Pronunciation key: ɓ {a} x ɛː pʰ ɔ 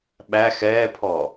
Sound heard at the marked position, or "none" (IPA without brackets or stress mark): æ